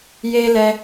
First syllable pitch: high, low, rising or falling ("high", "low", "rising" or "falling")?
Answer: high